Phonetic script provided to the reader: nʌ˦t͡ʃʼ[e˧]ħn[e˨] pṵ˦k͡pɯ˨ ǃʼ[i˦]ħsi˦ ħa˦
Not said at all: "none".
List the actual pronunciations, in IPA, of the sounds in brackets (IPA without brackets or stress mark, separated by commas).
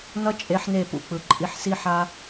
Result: e˨˦, e˦˨, i˧